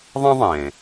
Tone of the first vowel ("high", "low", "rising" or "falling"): high